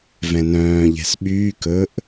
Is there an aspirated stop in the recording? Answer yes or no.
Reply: no